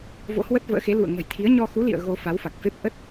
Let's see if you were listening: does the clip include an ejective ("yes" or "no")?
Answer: no